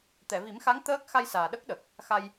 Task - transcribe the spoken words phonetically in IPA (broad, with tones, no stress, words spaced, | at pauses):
t̪ɛ˨˩˨vi˨˩˦mxa˧˥ŋ t̪əː˦˥k̚ xa˧jsaː˨˩ ɗə˦˥k̚ɗə˨˩k̚ | xa˧j